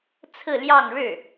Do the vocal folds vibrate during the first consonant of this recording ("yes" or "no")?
no